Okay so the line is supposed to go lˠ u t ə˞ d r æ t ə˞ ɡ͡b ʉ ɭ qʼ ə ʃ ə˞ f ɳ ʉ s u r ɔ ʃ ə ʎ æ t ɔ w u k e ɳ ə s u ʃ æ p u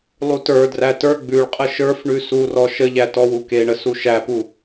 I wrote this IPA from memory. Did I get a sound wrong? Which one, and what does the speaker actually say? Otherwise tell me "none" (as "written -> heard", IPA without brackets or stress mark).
none